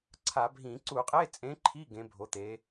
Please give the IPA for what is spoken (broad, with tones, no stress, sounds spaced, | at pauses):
ǀʰ a˧˩˧ bʱ ĩ˧˩˧ ǀ u˧˩˧ qʼ e˧˥˧ t͡sʼ ẽ˨˥ ǃʰ i˧˥˧ ɡ ẽ˩˧ bʱ o˩˧ t̪ e˩˧